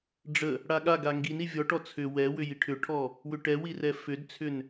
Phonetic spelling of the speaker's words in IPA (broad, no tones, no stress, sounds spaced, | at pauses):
ɖ͡ʐ ə | ɽ a ɠ a ɡ a ŋ ɡ i n i vʲ ɔ ʈ ɔ t͡sʰ ʏ w ɛ w ʏ j i ʈʰ ʏ ʈʰ ɔ | w ʏ ʈ ɛ w i r ɛ f ʏ d t͡sʰ ʏ n